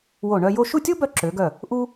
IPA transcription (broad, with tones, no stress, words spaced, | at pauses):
wo˧˩ ɳœ˥˧jo˥˧ ʃu˥˧tʲo˥bœ˧ ǁø˩˧ɡœ˧˩ | ʔu˥